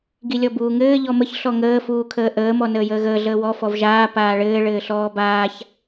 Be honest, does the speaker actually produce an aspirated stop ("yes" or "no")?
yes